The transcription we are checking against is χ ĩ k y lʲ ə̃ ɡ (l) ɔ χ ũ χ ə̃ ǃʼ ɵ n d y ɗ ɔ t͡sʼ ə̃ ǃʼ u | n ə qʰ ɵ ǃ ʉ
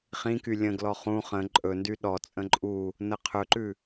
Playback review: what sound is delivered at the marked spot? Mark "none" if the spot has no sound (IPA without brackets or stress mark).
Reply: l